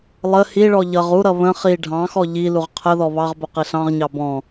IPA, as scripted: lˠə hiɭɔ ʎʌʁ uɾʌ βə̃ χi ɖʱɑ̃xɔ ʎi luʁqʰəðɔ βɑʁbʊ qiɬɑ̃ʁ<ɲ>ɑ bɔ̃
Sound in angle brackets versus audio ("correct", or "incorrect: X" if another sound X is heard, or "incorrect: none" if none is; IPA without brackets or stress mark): correct